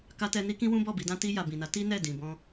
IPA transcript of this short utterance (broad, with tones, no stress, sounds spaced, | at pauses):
k a˧ t ɛ˧ n i˦ k ĩ˦ w ũ˦ b ɔ˦˨ b i˧ d ã˦ t i˧ j a˨ b ĩ˨ n a˨˦ t i˦ n ɛ˦˨ d ĩ˨ b ɔ̃˧